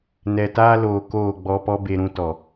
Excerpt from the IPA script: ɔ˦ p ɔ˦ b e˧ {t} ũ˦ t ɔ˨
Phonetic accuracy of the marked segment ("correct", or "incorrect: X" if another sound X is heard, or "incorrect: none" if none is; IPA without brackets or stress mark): incorrect: ɾ